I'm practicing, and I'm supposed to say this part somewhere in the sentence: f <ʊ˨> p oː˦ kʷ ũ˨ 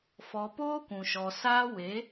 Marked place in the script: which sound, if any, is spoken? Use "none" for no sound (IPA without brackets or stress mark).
ɔ˨